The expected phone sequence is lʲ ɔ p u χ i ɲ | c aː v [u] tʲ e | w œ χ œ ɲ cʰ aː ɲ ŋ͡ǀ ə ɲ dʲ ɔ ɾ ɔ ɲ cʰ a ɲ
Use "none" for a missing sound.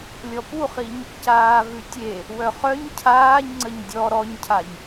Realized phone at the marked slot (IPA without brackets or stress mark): ʉ